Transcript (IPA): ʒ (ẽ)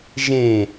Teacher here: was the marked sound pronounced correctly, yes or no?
yes